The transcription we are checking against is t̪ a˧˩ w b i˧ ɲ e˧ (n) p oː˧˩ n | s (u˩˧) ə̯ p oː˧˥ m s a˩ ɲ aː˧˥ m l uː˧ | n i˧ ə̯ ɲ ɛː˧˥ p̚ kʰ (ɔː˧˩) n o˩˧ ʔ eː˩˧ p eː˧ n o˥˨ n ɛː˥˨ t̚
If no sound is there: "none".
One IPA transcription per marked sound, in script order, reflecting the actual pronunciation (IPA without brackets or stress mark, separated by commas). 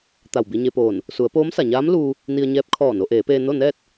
none, u˩˧, ɔː˧˩